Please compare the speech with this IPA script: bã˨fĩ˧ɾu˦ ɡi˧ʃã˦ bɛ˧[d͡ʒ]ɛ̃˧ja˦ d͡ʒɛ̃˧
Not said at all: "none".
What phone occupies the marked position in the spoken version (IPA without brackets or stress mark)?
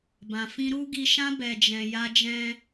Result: d͡ʒ